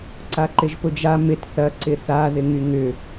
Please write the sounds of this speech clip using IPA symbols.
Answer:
ǀ a ǃ ɪ ʒ p ʊ d͡ʒ a m ɪ t θ ɐ ǀ ɪ θ a ð ɪ ŋ y ŋ ʏ

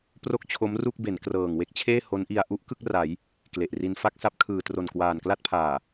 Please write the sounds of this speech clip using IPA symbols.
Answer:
p r o˥˩ k̚ t͡ɕʰ o˦˥ m r u˥˩ k̚ b e˩˦ n k r ɤː˨˩ ŋ w e˥˩ k̚ t͡ɕʰ eː˥˩ h o˦˥ n ʔ i˧ a̯ ʔ u˦˥ ʔ k ɯ˥˩ k̚ r a˩˦ j | k l e˨˩ ʔ r i˧ n f a˥˩ k̚ s a˦˥ p̚ kʰ ɯː˨˩ t r o˨˩ n k w aː˨˩ n k l a˥˩ t̚ pʰ aː˨˩

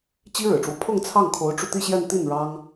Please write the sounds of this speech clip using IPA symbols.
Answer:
t͡ɕ i˥ ɻ ɻ̩˨˩ ʈ͡ʂ w ɔ˦ pʰ ʊ˥˧ ŋ t͡sʰ ɑ˥˩ ŋ kʰ o˧˥ ʊ̯ ʈ͡ʂ u˧ t̪ i˥˧ ɕ j ɛ˥˧ n t̪ i˥˩ n ɻ ɑ˥ ŋ

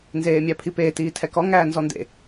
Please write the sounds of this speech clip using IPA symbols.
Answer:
n z eː mʲ æ pʰ i p eː t iː tʰ ɛ k ɔ ŋ æː n z ɔ n d ḛ

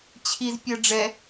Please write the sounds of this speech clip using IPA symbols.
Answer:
t͡ɕʰ i z pʲ ɜ ɖ͡ʐ ɛ

